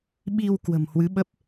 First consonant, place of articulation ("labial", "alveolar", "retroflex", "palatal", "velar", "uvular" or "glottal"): labial